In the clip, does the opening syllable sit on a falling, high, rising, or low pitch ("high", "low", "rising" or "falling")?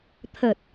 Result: low